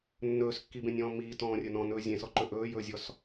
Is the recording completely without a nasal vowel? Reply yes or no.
no